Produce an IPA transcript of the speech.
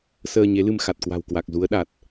səː˧ɲe˨˦lɨ˧m xa˨˩t̚kwa̤˨˩wkwa˨˩k̚ zu˨˦ə̯ɗa˨˩t̚

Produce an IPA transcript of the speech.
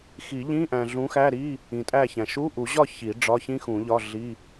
xi˨˩˦ʎĩ˧˥˧ ʔæ̃˨ɮũ˨˦xæ˧˥˧ɾi˧˥˧ | ĩ˨tʼæ˥˨çæ̃˨ ʃu˧˥˧ʔu˨˩˦ ʑɒ˥˨ çi˨˩˦ɖ͡ʐɒ˧˥˧ çĩ˥xũ˨˩˦ʎɒ˧˥˧ɮi˧˥˧

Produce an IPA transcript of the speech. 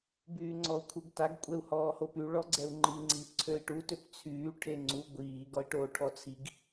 byːŋ͡ǀɔu̯kʰuɡtaɡ kʷʼɛu̯hɔːhopy ɭɔɡ͡ǀɛu̯ŋ͡ǃi ŋ͡ǀiːpǀʰøi̯ʈu tøpt͡sʰyː ʈʰeŋ͡ǀu ɡʷiː ɡɔi̯ʈoːʈʰɔt͡sʰiɡ

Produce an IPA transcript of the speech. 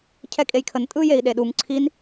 cʰɛkʼejkʰən tʼɯjei̯ɗeɗuŋ ǀʰin

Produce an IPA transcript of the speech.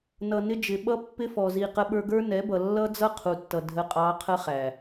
nʌ˨ nɪ˦d͡ʒɪ˨ ɓʌ˦pːɪ˦fɔ˨ zi˧qə˦ ɓə˞˧ɡə˞˦nɛ˨˦bʌ˨ lːʌ˦d͡zʌ˦ qʰu˨tːʌ˨ dʱə˦qʼɑ˦ qʰə˦χæ˨

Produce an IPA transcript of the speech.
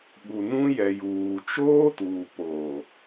ɓu˨nũ˦jɛ˨ juː˨ t͡ʃoː˦tuː˨ poː˨

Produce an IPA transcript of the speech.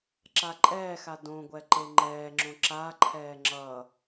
ǁaǃʼɛːxa dõɡʷɛ ǃeŋ͡ǃɛːŋ͡ǁõ ǁaǃʰɛː ŋ͡ǁʌ

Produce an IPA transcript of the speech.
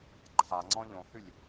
ǃʰaŋ͡ǀɔ̃ ʎõhʉlʲ

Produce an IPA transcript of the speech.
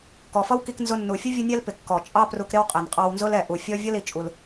kɔ˩fʌ˥w ki˧knzʊ˧ nːu˩fʲʊ˥ vʲə˥nʲɛ˥lpɪ˩ kːɔ˩t͡ʃʼɑ˥pru˧k ɾɪ˥wqʼɛ˩nqʼɑ˧wnzʊ˥l ɛ˩ʔu˩fʲɔ˥ vʲʌ˥li˩ t͡ʃʼu˧l

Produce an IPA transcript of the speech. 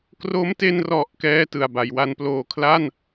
kro˦˥mte˧nrɔ˨˩ʔ kɛː˥˩tɯ˨˩a̯ ba˩˦jwa˦˥nploː˧ kʰla˥˩n

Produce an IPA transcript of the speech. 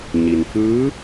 ɲi˩nfɯː˧˥

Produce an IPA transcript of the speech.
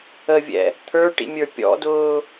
əvʲɛ̰ | t̪ʰə˞ʈḭmʲə˞ pʲɔ̰dʊː

